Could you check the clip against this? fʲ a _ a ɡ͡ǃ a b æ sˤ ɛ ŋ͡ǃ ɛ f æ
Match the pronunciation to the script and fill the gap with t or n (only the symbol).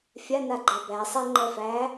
n